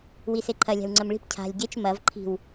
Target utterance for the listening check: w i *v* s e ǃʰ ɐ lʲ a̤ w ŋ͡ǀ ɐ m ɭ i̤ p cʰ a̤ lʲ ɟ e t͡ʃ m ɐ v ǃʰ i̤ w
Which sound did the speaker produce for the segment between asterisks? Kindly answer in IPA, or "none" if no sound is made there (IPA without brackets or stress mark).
none